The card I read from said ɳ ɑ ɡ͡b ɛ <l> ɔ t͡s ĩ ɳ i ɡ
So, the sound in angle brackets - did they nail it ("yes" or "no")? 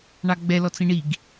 yes